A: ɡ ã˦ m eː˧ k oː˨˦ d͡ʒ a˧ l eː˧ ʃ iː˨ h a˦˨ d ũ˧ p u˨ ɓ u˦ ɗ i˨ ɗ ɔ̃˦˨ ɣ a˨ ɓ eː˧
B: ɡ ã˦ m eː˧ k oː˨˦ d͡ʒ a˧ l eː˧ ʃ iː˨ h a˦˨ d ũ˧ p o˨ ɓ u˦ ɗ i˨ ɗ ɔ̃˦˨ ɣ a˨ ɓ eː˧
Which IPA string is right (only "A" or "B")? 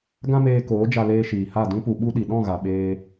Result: A